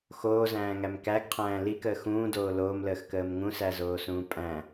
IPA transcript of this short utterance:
x oː z æ̃ː ŋ æ m k æ ɡ qʰ æ̃ː l i k əː x ũː d oː l oː m l əː x k əː m ŋ ũ s æ z oː s ũː pʼ æ̃

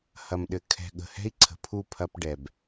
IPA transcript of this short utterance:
h ɐ˨ m ɗ ɘ˨ kʰ ɛ̤˨ ɠ ə̤˨ h ɛ̤˦ i̯ ǀʰ ə̤˨ pʰ u˦˨ pʰ ɐ˦ p ɖ ɛ˨ b

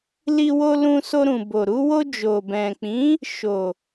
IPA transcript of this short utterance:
l i˧ w o˧ l ũ˧ s o˧ ɾ ũ˨ b o˨ ɾ u˧ w o˧ d͡ʒ o˨ b ɛ̃˨ k͡p ĩ˨˦ | ʃ o˨

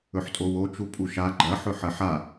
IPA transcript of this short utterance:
ɵ ħ tʼ o w o t͡ʃ u pʼ u ʃ a ɡ͡ǃ ɐ ħ ɵ ħ ɐ ħ a

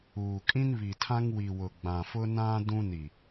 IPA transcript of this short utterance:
uː˨ kʼ ĩ˦ n β i˨ tʰ ã˦ ŋ w i˨ w ʊ˨ ɡ͡b ã˨ f ʊ˦ n ã˦ d ũ˦ n i˨

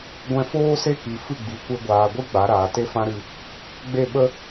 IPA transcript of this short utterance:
ɡʷ ɛ̃˧ f oː˦ s e˦ k i˨ f ɨ˦˨ ɡ͡b i˨˦ kʷ e˧ ɡʷ aː˨ ɡʷ ɨ˦ ɡ͡b a˨˦ ɾ aː˨ t e˦ f ã˦ ɾ ɨ˧ | ɡ͡b e˦˨ ɓ ə˦

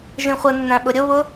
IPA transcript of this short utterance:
ʒ ĩ χʷ ə nː æ̃ ɓ ʊ ɾʲ ʊ β ʊ

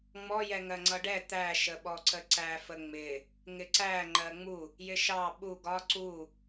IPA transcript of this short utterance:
ŋ͡m ɔ j ɛ ŋ ɜ ŋ͡ǀ ʌ ɖ ɛ t̪ æ ʃ ə ɓ ɔ ǀ ə ǀ æ f ə ŋ͡m ɪ | ŋ ɪ ǀ æ ŋ͡ǃ ɜ ŋ͡m u | j ɪ ʃ ɑ ɓ u ɡ ɒ ǀ u

